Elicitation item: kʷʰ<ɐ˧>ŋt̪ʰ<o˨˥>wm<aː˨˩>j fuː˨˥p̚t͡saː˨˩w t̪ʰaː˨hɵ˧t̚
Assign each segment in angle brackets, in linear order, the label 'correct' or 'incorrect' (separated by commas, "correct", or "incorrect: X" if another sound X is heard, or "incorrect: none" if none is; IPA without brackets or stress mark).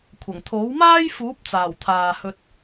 incorrect: ɐ˨˩, correct, incorrect: aː˥